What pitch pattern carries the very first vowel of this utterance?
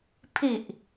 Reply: low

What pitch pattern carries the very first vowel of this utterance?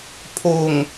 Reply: low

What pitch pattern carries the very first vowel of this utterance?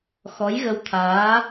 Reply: rising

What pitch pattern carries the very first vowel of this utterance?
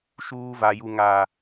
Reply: high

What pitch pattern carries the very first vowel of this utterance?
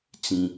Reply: low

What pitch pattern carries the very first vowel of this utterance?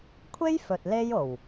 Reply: high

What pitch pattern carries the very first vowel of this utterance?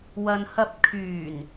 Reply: low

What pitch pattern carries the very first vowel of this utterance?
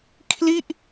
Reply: falling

